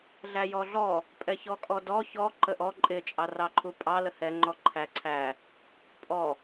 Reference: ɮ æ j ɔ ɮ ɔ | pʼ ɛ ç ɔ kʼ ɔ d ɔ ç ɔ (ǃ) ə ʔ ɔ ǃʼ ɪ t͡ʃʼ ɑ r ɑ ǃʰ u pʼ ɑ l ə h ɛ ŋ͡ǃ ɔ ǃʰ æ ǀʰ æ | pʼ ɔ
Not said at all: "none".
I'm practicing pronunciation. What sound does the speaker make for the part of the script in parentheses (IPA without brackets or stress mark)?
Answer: ǃ